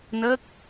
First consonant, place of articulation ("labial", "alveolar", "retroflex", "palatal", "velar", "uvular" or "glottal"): alveolar